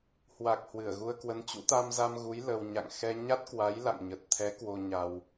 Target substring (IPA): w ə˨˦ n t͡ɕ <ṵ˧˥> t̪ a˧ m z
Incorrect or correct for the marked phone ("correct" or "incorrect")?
correct